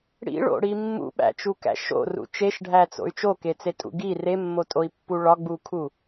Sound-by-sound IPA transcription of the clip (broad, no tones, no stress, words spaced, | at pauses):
ɽḭɭo̰ɽi mːṵɓæ̰t͡ʃukæ̰ ʃo̰rṵ t͡ʃeʃɖʱæt͡so̰y̯ t͡ʃoket͡setʼṵ ɡi remːotʼoi̯pːu ɭɒɡ͡bukʰu